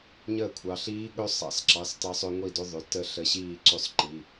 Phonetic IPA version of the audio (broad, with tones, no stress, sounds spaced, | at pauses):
ɲ əː˥˩ kʷʰ ɑ˩˧ ɬ iː˦˥ ɠ ɵ˦˥ sˤ ɑ̰˩˧ s ǁ ɑ˩˧˩ s t ɑ˧ sˤ ɵ˧ ŋʷ i˥˩ d ɵ˦˥ ðˤ ʏ˩˧˩ t ə˥˩ ɬ ə˧ ɕ iː˥˩ ǀ ʏ˥˩ sˤ ǃ i˩˧˩